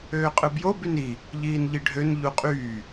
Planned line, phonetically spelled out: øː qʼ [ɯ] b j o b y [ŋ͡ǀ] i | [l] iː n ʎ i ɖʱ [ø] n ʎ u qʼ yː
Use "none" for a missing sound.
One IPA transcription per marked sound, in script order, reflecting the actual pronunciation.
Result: ɯ, n, ʎ, ø

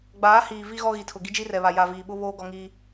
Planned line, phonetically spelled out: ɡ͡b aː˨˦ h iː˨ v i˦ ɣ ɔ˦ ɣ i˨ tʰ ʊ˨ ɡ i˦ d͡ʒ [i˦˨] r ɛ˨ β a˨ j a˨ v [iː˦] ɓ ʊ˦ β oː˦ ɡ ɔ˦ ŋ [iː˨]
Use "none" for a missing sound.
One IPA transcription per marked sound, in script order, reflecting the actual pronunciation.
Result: i˦, iː˨, iː˦

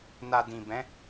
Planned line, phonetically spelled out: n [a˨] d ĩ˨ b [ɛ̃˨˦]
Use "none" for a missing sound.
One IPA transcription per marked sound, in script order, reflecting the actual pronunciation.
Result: a˨, ɛ̃˨˦

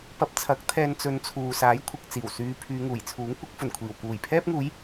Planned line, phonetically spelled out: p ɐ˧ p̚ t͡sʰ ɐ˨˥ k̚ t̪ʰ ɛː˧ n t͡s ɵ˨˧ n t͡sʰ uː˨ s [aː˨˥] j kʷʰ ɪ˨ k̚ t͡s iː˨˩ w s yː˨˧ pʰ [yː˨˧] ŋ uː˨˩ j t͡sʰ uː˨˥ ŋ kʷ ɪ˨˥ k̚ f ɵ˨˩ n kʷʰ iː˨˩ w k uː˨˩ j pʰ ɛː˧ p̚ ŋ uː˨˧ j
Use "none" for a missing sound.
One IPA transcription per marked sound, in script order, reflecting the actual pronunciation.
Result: aː˨˥, yː˨˧

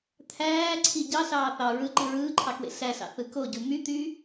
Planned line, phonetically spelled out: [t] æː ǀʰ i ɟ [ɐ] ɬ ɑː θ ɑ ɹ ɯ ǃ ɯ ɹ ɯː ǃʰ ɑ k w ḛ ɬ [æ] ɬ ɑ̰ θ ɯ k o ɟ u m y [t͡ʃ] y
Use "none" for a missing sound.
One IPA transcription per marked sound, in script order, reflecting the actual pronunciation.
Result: t̪ʰ, ɑ, æ, t̪

